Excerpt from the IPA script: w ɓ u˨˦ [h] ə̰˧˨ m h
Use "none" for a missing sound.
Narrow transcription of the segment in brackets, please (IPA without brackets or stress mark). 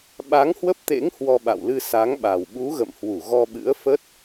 ɣ